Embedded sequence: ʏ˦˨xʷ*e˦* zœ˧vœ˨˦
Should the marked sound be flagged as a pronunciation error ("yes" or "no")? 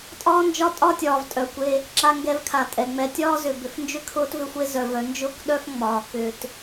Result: no